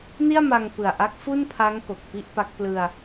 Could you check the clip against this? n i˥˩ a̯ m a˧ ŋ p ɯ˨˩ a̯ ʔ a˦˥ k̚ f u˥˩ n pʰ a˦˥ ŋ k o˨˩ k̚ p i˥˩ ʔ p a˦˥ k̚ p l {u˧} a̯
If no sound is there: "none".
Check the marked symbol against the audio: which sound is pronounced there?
ɯ˧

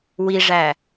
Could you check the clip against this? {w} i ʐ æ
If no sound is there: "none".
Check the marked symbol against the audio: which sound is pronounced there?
w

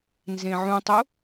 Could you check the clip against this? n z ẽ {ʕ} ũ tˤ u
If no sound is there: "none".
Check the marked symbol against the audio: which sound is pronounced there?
ʕ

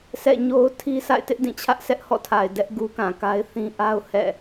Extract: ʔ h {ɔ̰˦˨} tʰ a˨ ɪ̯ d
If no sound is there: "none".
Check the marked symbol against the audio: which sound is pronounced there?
ɔ̰˦˨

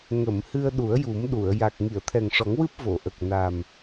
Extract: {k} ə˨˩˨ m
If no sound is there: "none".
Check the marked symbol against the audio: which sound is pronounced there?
ŋ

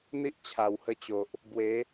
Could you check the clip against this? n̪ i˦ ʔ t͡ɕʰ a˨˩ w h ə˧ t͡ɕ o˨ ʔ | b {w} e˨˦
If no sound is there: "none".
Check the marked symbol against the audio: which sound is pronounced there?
w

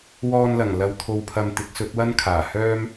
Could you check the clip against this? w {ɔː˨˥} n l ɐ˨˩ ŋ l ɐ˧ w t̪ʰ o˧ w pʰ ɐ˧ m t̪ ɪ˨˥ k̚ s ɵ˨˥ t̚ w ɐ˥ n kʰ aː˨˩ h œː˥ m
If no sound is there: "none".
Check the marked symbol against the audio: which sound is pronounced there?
ɔː˧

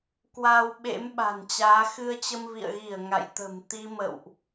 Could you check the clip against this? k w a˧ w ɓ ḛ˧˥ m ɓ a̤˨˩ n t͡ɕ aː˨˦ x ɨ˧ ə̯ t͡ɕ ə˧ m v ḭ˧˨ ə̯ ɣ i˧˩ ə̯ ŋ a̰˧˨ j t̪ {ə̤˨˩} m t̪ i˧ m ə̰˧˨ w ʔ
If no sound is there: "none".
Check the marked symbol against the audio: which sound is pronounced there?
ə̤˨˩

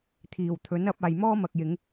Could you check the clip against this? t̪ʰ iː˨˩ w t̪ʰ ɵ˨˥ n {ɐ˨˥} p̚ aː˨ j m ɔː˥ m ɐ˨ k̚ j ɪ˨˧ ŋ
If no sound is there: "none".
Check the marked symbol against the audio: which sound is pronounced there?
ɐ˨˥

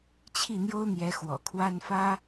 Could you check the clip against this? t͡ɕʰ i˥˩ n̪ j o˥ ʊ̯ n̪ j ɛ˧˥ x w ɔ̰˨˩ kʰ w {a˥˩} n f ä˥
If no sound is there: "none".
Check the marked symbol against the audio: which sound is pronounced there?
a˥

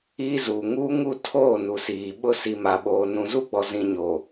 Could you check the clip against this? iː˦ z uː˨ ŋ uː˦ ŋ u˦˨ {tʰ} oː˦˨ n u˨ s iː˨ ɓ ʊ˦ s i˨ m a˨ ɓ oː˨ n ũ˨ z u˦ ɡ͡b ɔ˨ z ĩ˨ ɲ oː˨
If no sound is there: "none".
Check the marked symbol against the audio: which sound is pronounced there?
tʰ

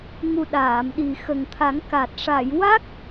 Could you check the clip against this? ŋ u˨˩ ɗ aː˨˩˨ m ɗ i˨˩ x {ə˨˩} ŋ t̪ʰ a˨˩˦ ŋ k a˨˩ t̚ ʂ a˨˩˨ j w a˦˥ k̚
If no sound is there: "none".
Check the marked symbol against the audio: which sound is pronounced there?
ə˨˩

